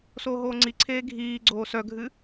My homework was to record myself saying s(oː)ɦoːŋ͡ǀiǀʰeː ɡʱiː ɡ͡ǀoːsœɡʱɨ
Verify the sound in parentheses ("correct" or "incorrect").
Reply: correct